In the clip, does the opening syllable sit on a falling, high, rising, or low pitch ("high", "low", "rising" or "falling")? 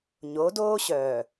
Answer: rising